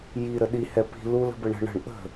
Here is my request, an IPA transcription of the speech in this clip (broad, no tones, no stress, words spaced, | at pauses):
ji ɾəɗi hɛpi̤ lulə̤bə ɳə̤ ɳə̤ɳ ʔə̤